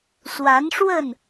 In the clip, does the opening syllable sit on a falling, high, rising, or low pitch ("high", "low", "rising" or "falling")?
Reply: rising